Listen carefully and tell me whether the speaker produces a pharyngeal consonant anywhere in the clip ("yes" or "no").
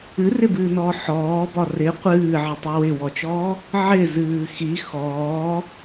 yes